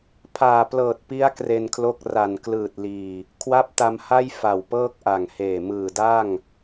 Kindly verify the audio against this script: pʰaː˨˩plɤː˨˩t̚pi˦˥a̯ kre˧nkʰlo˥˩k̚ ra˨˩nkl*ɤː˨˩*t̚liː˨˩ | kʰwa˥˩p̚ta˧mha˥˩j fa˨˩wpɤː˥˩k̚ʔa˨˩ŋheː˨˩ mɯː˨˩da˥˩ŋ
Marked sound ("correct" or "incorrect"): incorrect